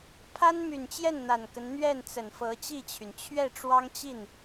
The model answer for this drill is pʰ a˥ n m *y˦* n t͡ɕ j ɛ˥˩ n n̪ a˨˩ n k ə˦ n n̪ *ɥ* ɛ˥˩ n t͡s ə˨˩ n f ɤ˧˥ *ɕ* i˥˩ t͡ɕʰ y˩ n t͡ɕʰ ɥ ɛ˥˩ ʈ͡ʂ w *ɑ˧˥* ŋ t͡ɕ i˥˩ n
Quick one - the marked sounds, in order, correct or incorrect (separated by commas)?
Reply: incorrect, correct, incorrect, incorrect